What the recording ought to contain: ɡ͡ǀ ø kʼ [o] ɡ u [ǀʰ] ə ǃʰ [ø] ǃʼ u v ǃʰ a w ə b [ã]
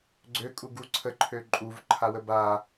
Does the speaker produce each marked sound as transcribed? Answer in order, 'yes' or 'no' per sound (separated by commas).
no, yes, yes, no